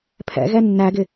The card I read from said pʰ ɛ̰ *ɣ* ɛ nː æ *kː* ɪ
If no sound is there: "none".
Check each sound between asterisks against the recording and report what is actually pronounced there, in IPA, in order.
ɣ, ɡ

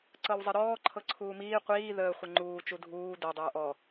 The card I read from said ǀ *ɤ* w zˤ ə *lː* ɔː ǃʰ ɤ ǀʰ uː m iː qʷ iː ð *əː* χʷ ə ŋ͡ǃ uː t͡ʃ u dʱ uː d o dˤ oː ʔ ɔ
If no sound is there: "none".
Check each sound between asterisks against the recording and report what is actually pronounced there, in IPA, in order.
ɤ, ɾ, əː

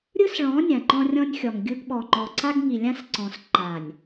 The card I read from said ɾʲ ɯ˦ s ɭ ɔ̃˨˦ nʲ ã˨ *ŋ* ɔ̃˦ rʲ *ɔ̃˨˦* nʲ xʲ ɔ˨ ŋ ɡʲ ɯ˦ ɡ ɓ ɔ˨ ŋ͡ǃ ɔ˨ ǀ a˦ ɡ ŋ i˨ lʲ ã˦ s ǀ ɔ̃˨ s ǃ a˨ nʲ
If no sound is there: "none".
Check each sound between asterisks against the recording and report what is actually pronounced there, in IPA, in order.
ŋ͡ǃ, ɔ̃˦

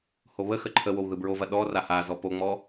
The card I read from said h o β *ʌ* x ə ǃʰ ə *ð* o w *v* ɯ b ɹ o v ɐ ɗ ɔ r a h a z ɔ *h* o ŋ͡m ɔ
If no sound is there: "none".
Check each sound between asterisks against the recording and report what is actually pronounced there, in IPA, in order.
ə, w, ð, p

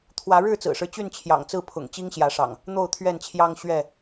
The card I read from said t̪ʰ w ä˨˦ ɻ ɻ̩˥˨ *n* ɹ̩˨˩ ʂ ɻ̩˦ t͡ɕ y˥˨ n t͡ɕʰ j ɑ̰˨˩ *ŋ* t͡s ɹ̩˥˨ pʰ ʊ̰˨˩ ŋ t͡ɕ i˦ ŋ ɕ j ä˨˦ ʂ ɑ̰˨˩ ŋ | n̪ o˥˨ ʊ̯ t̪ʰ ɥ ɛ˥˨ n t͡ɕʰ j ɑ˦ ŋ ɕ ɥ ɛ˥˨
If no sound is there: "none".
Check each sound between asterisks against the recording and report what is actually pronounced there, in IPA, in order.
t͡s, ŋ

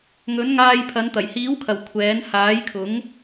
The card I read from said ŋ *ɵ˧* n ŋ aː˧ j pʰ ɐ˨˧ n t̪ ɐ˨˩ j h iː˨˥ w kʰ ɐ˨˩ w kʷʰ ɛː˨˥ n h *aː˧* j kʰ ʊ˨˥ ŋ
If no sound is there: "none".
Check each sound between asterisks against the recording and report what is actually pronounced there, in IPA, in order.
ɵ˨˥, aː˨˥

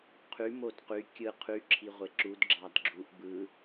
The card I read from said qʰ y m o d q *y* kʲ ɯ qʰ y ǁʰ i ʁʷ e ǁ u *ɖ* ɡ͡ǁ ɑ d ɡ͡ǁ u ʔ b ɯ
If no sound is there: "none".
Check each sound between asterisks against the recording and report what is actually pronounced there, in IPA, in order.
y, d

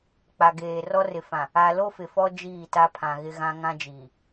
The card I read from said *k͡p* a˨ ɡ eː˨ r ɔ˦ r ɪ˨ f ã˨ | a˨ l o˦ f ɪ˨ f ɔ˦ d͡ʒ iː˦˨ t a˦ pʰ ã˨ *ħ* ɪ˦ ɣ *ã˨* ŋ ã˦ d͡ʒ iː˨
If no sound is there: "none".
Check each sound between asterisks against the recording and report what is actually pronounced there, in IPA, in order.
k͡p, ɣ, ã˦

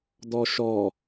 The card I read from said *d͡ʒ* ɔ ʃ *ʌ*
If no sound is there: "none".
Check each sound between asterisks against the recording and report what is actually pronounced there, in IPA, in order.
d, ɔ

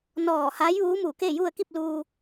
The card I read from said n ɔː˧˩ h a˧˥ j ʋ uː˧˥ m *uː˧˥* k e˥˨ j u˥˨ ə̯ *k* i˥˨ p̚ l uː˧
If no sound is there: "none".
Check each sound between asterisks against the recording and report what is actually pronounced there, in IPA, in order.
uː˧˩, k

